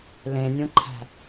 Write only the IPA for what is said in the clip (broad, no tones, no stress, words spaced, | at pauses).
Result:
lẽnʲũǃʰæ̤